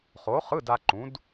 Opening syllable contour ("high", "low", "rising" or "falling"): rising